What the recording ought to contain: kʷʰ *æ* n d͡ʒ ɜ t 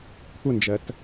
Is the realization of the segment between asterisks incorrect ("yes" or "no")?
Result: yes